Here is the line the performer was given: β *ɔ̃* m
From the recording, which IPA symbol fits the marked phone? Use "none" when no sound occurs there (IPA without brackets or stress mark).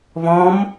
ɔ̃